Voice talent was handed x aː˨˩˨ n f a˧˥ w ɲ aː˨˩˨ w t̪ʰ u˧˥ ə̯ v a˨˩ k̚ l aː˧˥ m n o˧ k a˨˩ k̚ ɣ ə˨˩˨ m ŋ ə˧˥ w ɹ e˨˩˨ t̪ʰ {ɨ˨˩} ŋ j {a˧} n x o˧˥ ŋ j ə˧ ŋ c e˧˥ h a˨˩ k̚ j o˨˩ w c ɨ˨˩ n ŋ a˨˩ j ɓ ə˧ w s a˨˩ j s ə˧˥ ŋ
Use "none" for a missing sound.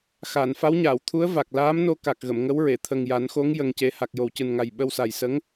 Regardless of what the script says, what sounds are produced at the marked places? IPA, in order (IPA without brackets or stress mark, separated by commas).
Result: ə˨˩, a˨˩˦